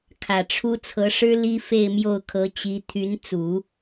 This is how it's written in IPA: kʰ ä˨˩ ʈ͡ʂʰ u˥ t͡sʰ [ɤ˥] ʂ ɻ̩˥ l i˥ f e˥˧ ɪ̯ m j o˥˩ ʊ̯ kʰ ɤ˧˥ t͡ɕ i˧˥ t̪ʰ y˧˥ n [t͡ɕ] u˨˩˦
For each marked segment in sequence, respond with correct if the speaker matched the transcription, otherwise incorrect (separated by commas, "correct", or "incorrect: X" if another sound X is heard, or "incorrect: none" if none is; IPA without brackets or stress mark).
incorrect: ɤ˧˥, incorrect: t͡s